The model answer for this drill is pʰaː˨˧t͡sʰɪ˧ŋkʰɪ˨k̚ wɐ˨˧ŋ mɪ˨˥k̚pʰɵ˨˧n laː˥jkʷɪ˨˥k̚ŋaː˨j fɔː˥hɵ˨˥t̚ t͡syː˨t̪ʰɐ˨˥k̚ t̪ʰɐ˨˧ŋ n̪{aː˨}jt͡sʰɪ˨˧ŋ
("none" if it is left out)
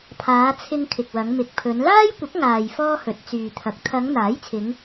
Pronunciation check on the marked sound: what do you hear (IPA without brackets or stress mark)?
aː˨˥